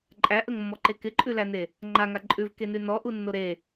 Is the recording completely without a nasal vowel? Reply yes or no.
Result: yes